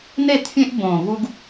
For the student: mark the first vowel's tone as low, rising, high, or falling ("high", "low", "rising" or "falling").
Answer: falling